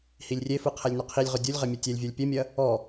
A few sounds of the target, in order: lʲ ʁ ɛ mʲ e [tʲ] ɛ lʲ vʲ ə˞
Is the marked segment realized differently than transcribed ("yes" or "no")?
no